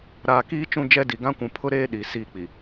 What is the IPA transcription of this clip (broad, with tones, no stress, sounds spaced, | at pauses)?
ɾ aː˨ k iː˦ t͡ʃ ũ˦˨ d͡ʒ ɛ˦ d i˨ ɡ ã˦ kʷ ũ˨ pʰ ʊ˦ ɾ eː˦ ɗ i˨ s iː˦˨ k͡p i˨